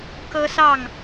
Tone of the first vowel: high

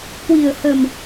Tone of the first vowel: low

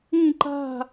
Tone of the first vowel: falling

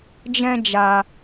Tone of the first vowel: high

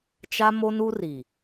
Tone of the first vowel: high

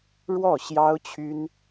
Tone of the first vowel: falling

